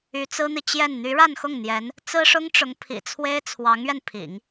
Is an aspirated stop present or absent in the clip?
present